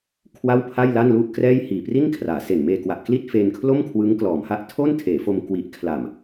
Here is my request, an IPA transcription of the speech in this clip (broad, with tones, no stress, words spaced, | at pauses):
kʰwa˥˩wpʰa˥˩jla˥˩n lu˥˩ʔkrɛː˥˩j hiː˨˩pri˥˩nkʰraː˩˦se˨˩n meː˧kwa˨˩ʔ kli˥˩t̚fe˧nkʰlo˥˩m kʰwɯ˦˥ŋklɔː˩˦mha˦˥ʔ tʰo˥˩ntʰeː˩˦fo˧mkwi˨˩ʔ kʰla˨˩m